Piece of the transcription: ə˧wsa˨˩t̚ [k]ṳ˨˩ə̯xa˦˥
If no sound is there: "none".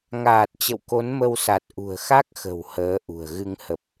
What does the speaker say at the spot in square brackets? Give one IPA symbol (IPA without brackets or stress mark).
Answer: ʔ